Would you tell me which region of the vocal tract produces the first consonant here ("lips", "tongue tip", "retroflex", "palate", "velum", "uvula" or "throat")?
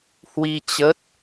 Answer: throat